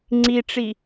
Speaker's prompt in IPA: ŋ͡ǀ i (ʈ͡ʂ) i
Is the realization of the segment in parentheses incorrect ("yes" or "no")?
no